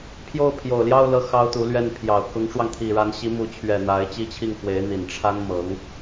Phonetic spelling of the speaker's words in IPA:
pʰ j o˥˩ ʊ̯ pʰ j o˨˩ ʊ̯ l j ɑ˥˧ ʊ̯ l ɤ˥˩ x ɑ˥ ʊ̯ t̪ u˧˥ l ɥ ɛ˥˩ n pʰ j ɑ˨˩ ʊ̯ k ʊ˧˥ ŋ ʈ͡ʂ w ɑ˧ ŋ t̪ʰ i˨˩ ɻ a˧˥ n ɕ i˧˥ m u˧˥ t͡ɕʰ ɥ ɛ˨˩ n̪ a˧˥ ɪ̯ t͡ɕ i˥˧ t͡ɕʰ i˥˩ ŋ x w e˧˥ ɪ̯ n̪ i˨˩ n ʈ͡ʂʰ a˥ n m ɤ˧˥ ŋ

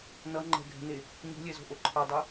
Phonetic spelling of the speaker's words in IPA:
n ʌ ŋ͡ǃ ɛ̤ ɡʱ ɛ̤ n e | ɲ o̤ lʲ ɛ z o̤ ʔ o ǃʰ ʌ dˤ ɯ

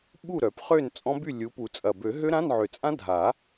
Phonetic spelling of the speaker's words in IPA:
ɓ u˥˨ ɾ œ˨˩˦ p χ ø˥˨ n t͡sʼ ɔ̃˦˥ b y˥˨ lʲ u˨˦ p u˨˩˦ t͡sʼ ɐ˨˩ b ø˨˩˦ ɦ ø˦˥ ɾ ã˧˥˧ n ʕ ø˨˩ t͡sʼ ã˦˥ dʱ a˨˩˦

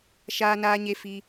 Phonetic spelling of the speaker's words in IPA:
ʃ aː˦ n aː˦ ɲ e˦ f i˦

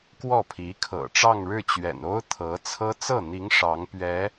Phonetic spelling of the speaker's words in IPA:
k w ɔ˥˩ pʰ i˧˥ kʰ ɤ̰˨˩ ʈ͡ʂ ɑ˥˧ ŋ ɻ ɻ̩˥˩ t͡ɕ ɥ ɛ̰˨˩ n o˥ ʊ̯ t̪ʰ ɤ˧˥ t͡sʰ ɤ˥ t͡s ɤ˥˩ n̪ i˧˥ ŋ ʂ ɑ˧˥ ŋ p ɥ ɛ˧˥

